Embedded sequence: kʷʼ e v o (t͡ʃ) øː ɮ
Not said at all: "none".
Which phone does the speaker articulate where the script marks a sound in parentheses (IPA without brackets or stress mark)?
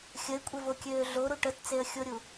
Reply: kʲ